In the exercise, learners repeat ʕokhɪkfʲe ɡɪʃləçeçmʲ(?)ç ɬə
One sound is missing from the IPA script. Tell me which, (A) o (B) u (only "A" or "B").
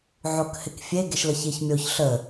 A